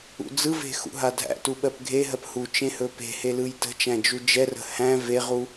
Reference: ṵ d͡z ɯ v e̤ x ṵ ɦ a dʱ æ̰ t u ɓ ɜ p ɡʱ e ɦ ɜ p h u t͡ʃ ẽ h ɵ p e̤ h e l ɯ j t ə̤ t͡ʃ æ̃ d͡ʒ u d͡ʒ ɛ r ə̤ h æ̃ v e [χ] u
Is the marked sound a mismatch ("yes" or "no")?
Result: yes